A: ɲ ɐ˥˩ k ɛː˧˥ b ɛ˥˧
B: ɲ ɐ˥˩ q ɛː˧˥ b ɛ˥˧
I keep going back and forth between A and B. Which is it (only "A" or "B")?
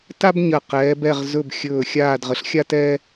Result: B